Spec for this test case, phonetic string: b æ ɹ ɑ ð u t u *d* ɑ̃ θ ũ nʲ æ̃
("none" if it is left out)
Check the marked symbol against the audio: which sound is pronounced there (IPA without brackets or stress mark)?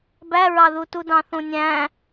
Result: d